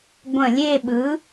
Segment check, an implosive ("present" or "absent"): present